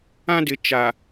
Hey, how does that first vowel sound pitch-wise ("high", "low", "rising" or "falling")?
high